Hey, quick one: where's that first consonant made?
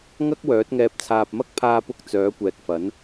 velum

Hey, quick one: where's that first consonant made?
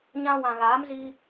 palate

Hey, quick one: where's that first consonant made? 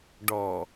retroflex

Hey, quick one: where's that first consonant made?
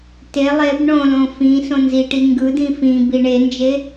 tongue tip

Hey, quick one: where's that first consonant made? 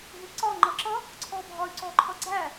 throat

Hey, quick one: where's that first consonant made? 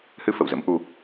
throat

